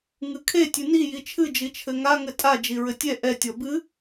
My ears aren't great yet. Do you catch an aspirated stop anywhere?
yes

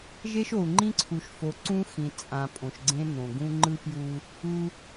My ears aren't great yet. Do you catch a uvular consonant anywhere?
no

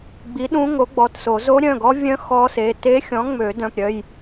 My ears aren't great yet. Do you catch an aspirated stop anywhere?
no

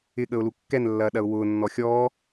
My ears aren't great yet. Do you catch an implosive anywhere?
yes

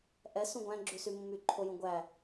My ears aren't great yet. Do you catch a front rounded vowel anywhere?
yes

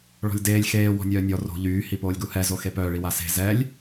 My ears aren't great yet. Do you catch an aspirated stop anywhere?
no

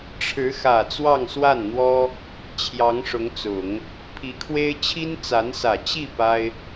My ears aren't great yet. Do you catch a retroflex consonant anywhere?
yes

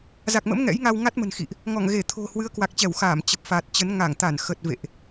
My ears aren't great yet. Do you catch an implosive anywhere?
no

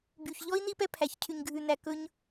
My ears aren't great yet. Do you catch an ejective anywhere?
no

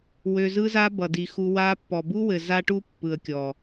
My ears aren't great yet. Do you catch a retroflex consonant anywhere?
yes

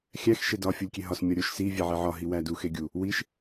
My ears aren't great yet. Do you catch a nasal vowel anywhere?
no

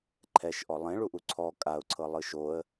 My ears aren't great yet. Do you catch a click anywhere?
yes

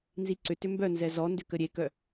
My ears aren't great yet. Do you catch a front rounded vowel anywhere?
yes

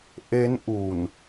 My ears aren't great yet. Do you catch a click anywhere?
no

